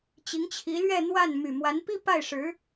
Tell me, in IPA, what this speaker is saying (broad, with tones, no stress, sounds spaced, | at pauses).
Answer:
t͡ɕ i˧˥ ŋ t͡ɕʰ i˧˥ l ɥ ɛ˥˧ n̪ w a˥˩ n m y˨˩ m w a˧˥ n p i˥ p a˥˩ ɪ̯ ʂ ɻ̩˧˥